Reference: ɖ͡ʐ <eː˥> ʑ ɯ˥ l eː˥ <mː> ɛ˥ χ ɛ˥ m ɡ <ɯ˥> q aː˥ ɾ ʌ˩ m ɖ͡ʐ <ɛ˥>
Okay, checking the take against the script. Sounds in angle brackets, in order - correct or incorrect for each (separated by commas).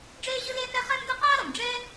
correct, incorrect, correct, correct